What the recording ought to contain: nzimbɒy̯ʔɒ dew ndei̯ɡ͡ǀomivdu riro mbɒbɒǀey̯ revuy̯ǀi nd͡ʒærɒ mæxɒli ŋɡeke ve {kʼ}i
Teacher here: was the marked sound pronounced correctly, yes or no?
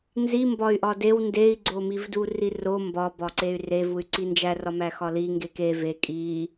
yes